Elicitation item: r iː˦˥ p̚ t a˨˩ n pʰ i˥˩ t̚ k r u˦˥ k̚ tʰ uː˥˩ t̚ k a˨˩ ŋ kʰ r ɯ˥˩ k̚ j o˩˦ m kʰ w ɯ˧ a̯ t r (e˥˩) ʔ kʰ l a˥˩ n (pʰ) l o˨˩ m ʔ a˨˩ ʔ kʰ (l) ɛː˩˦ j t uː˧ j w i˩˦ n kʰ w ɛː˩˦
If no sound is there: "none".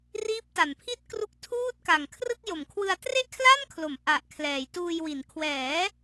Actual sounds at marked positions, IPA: e˥˩, kʰ, l

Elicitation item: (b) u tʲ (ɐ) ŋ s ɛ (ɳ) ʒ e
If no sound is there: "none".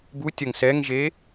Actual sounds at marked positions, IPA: b, ɐ, ŋ

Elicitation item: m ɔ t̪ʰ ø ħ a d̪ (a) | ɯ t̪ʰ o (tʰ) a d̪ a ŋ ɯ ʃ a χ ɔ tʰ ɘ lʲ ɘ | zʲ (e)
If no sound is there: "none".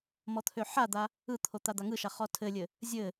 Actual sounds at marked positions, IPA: a, t̪, ɘ

